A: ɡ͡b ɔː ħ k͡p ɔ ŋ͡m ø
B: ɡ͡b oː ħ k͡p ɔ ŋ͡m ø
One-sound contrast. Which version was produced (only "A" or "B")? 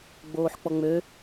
B